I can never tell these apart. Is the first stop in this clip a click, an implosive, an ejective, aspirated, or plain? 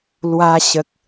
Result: plain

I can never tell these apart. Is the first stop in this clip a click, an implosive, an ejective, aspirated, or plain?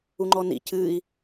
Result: click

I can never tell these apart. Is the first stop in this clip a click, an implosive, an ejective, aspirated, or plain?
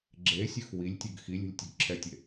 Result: click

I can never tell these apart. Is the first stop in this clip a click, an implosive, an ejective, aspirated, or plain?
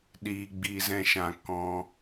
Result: implosive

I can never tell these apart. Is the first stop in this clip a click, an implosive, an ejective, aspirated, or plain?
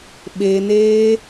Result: implosive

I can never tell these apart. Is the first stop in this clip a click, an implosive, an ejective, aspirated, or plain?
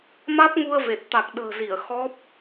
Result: plain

